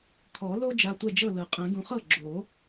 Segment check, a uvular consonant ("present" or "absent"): present